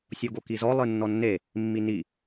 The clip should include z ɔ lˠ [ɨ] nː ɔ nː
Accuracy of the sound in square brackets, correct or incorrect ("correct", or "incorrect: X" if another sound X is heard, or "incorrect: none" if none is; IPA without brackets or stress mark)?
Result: correct